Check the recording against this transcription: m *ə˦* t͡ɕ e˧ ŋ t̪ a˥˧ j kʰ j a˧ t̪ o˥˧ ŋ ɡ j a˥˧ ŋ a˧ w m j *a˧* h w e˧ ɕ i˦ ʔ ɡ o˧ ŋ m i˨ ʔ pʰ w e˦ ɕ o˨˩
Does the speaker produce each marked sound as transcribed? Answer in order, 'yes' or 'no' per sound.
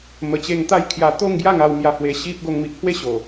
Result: no, yes

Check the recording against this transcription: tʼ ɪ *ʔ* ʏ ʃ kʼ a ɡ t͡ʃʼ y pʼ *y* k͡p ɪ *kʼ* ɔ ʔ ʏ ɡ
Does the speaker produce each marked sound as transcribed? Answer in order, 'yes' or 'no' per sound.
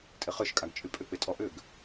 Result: no, no, no

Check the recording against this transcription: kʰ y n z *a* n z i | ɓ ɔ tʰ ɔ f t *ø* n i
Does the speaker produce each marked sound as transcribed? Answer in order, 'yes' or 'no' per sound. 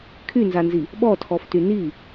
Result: yes, no

